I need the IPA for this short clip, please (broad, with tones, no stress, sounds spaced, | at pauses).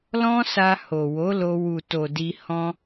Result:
l ɔ̃˦ s a˧ h o˨ w o˨˦ l o˧ w u˨ t o˨ d i˧ h ɔ̃˧